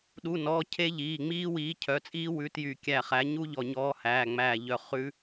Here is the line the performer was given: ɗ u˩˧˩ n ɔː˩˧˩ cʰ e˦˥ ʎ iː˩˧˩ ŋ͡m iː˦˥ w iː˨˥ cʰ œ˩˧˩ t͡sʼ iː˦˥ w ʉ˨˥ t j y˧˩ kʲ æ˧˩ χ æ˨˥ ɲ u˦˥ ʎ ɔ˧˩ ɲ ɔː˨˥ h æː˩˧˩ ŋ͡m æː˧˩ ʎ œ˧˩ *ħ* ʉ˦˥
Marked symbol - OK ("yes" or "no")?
no